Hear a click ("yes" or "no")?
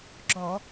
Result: yes